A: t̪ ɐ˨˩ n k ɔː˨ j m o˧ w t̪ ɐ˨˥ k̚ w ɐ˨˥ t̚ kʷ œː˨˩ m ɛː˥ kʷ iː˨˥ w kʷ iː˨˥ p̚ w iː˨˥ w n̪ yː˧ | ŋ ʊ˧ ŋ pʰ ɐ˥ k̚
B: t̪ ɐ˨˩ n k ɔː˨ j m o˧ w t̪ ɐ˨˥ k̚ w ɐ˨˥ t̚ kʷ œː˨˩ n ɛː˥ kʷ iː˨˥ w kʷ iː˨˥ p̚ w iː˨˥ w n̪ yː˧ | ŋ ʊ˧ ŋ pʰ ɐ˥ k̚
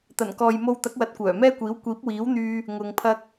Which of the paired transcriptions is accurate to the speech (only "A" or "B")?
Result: A